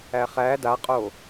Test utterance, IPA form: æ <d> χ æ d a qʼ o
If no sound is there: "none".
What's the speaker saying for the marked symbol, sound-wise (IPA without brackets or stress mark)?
none